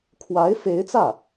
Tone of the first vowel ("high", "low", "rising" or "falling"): rising